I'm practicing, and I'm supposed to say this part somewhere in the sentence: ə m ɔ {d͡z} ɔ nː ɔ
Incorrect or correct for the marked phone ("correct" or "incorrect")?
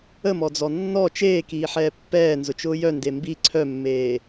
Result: correct